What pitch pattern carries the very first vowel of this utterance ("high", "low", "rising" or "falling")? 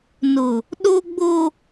low